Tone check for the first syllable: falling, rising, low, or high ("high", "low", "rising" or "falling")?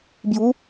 rising